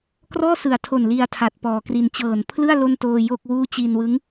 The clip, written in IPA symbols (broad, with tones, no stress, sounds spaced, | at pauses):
k r ɔː˥˩ s ɯ˨˩ a̯ tʰ o˨˩ n l i˧ a̯ tʰ a˨˩ t̚ p ɔː˨˩ k r i˧ n t͡ɕ ɤː˨˩ n pʰ l ɯ˥˩ a̯ l o˥˩ n t oː˧ j o˥˩ k̚ w uː˥˩ t͡ɕ i˧ n w ɯ˦˥ ŋ